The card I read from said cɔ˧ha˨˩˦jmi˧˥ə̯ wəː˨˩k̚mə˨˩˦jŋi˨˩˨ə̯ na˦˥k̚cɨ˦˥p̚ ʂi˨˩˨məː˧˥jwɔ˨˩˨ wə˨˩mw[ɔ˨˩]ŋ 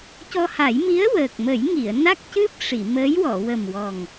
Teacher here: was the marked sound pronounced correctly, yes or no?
yes